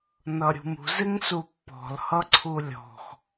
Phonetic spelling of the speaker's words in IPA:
n ʌ ɾʲ ṳ m ṳ z ɪ ŋ s u pː ɔ̤ l h ʌ ǀʰ u lʲ ɔ̤ x

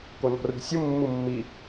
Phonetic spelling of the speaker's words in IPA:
k o n ɔ̤ r ṳ sʲ u mː u mː i

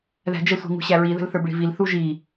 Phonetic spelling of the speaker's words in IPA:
ð æ̤ d͡ʒ ə sʷ i̤ ŋ ṳ ɕ æ ɹ i ð ə̤ l θ ə˞ b ɭ i̤ v i l θ u ʒ i

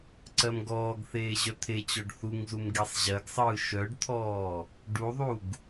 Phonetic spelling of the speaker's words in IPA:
ǀ ɜ m ɡ ɔː ɡ θ eː ʑ œ t̪ʰ e t͡ɕ ɔ ɖ θ u ŋ z u m ɡ e sˤ ʑ ɜ ɡ sˤ ɯː ʃ œ ɖ t̪ʰ ɔː | ɖ u ðˤ u ɡ

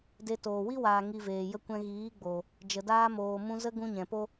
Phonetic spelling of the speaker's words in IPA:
d e˧ t oː˨ w i˦ w aː˨ ŋ i˧ v eː˨ j ə˦ kʷ ɛ̃˦ ɣ iː˨˦ ɡ͡b o˨ | d͡ʒ ə˨ d aː˧ m oː˨ m ũ˧ z ə˦ ɡ ũ˧ ɲ ɛ̃˨ p o˦

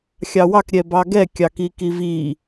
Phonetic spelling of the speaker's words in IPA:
xʲ ɑ w ɑ k ɾʲ ɛ b ɑ ɡ ɛ kʲ ɑ k i k i v i

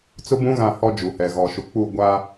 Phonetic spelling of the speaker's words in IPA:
t͡s ʊ˦ b ũ˦ ɣ ã˦˨ h ɔ˦ d͡ʒ u˨ h ɛ˨ ɣ ɔ˨ ʃ u˨ k͡p u˦˨ ɡʷ a˦

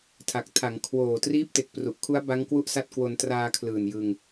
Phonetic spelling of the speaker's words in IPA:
tʰ a˨˩ k̚ tʰ a˩˦ ŋ kʰ w oː˨˩ t r iː˦˥ p̚ t e˨˩ k̚ p r u˨˩ ʔ kʰ u˦˥ a̯ b a˦˥ ŋ k w u˥˩ ʔ s a˥˩ t̚ k w o˧ n t r aː˧ kʰ l ɯː˨˩ n j ɯ˧ ŋ

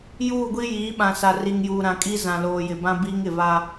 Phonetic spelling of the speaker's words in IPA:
j uː˦˨ ɡʷ i˦ j iː˨˦ ɓ ã˨ s a˨ r i˨ ŋ j uː˨ ɾ ã˨ kʼ i˦ z ã˨ l oː˨ j ɪ˨ b ã˦ b iː˦ ŋ ɪ˨ v a˦

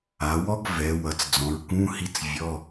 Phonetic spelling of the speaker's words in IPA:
a˩˧ w ɔ˥ ɡ v ɛ˩˧ w ʌ˩˧ t͡s d͡z ɔ̃˩˧ ɹ k ũ˧˥˧ h i˥ t͡s vʲ ɔ˧˥˧

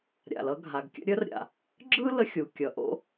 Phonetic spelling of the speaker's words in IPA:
ɾʲ a̰˩ l ʌ˥ ɡʱ a˩ ɡ kʲ ə̰˥ ɾʲ ə˥ r ɾʲ a̰˩ | ɡ͡ǁ ɯ˥ l ə˥ xʲ u˩ kʲ ʌ˩ ʔ o̰˥

